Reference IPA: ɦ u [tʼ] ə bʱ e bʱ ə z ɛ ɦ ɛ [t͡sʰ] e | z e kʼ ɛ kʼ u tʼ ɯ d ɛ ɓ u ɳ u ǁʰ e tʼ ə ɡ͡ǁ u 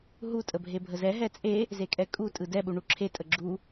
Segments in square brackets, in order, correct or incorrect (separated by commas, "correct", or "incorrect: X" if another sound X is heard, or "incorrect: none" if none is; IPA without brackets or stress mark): correct, incorrect: t͡sʼ